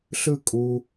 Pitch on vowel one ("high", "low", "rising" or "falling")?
falling